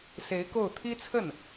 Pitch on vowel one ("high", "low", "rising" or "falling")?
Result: rising